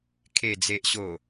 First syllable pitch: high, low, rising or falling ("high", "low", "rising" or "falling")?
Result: low